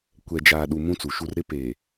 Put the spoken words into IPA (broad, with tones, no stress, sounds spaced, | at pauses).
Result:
kʷ ɛ˨ d͡ʒ aː˨ ɗ u˨ m ũ˦ t͡s u˨ ʃ u˦ r ɾ ɪ˦ p eː˨